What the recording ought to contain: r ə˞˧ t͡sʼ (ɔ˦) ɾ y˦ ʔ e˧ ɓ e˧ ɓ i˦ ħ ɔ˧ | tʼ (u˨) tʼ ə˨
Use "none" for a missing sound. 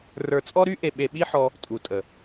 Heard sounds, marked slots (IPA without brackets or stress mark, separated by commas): ɔ˦, u˨